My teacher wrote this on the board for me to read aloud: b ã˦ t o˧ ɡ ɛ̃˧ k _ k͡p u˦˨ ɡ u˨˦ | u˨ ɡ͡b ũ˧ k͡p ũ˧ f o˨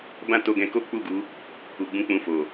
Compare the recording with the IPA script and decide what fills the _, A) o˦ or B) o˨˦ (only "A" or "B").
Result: A